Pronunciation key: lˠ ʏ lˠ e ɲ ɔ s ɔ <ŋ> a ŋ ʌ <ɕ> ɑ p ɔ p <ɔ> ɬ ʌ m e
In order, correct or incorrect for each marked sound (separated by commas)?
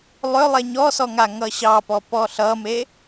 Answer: correct, correct, correct